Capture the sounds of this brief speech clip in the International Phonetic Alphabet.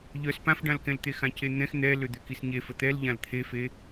ʎœs pãfɖãlkɛ̃l t̪exãcen̪ɛ̃x n̪ɛ lød̪økisɲe fət̪ɛlʎãl t̪ʰefe

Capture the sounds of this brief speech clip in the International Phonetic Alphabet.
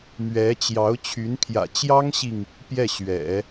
mɥɛ˧˥t͡ɕjɑ˧˥ʊ̯ t͡ɕʰy˧˥npʰjä̰˨˩ t͡ɕjɑ˥ŋɕi˨ŋ | pjɛ˥˩ ɕɥɛ̰˨˩˦

